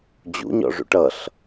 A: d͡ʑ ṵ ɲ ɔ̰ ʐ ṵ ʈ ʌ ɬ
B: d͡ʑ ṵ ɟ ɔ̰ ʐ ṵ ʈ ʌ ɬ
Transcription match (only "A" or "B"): A